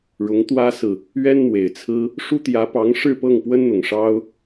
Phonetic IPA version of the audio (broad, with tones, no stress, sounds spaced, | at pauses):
ɻ ʊ˧˥ ŋ t̪ w ä˥ s ɹ̩˨ | ɥ ɛ˥ n n̪ w e˨˩ ɪ̯ t͡sʰ ɹ̩˥ | ʂ u˥ t̪ j ä˧˥ p ɑ˧˥ ŋ ʂ ɻ̩˥˧ p ɤ˥˩ ŋ p w ə˥ n n̪ ʊ˨˩ ŋ ʂ ɑ˥ ʊ̯